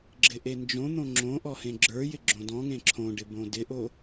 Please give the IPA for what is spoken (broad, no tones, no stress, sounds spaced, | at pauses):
ɡ͡ǁ ɪ ʔ e n d͡ʒ õ n̪ õ ŋ͡ǁ õ ʔ ɔ h ẽ ɡ͡ǁ ə˞ j ɪ ɡ͡ǁ õ d ɔ̃ ŋ ẽ ǁʰ õ ɖ ɪ b õ d ɪ ʔ o